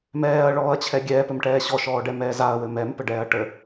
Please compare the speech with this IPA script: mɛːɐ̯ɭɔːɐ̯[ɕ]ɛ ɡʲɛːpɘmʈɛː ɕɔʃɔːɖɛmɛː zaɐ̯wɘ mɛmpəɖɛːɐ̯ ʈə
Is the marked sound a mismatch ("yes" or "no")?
yes